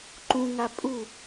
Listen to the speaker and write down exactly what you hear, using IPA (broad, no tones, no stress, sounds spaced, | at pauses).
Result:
ǃ ũ ŋ a pʼ u